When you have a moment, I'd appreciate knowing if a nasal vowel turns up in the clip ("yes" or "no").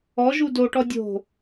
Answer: no